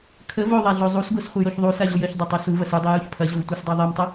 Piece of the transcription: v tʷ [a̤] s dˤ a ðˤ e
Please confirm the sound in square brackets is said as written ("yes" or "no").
no